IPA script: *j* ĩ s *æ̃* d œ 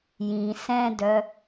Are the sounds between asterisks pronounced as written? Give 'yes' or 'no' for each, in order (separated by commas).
yes, no